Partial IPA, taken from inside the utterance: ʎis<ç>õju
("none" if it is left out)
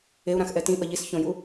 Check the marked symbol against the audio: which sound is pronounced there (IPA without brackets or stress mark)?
ç